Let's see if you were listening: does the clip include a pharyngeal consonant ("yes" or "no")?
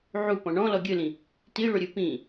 yes